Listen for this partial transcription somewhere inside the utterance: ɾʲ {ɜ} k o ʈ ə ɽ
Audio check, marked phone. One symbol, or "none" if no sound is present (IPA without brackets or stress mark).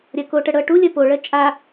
ɜ